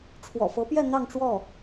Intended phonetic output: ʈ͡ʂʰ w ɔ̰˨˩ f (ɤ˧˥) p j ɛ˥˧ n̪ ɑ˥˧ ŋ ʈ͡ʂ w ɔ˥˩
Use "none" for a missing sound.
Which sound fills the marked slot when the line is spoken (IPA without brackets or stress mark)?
ɤ˧˥